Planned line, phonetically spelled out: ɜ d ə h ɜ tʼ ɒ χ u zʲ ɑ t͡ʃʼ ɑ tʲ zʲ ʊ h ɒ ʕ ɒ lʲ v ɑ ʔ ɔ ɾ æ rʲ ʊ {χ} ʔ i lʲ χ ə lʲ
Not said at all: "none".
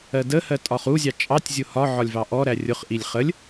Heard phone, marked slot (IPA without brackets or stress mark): χ